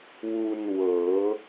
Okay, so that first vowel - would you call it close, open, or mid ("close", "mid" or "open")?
close